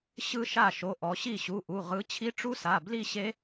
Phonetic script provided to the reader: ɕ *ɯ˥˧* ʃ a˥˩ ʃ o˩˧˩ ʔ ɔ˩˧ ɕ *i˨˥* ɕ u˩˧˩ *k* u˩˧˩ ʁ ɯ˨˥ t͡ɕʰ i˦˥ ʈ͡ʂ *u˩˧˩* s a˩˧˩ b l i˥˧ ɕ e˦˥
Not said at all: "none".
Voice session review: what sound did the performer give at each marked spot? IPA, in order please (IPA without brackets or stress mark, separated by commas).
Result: ɯ˥˧, i˥˩, ʔ, u˦˥